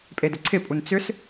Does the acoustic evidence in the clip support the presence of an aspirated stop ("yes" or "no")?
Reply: yes